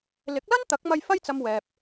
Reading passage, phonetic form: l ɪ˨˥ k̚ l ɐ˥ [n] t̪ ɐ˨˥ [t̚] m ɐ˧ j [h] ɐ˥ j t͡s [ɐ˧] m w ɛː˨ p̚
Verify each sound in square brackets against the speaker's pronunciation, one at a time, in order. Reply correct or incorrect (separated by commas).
correct, incorrect, incorrect, correct